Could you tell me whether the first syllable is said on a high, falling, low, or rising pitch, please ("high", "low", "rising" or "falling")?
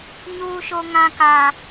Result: high